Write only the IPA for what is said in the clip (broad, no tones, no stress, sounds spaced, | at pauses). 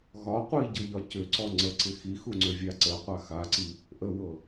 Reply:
ɣ ɒ qʷ i ɟ ɤ ʎ ɒ c ʏ ǀ ɔ ŋ͡ǀ ə ǀ ɪ x i x u ŋ͡ǀ ʏ vʲ a ǀ ə qʷ a x a ǀ i | ʔ ə w ɤ